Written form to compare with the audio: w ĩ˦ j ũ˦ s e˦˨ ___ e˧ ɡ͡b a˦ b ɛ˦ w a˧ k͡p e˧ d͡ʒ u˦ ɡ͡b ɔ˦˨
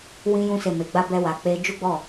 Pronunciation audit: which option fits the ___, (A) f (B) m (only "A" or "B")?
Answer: B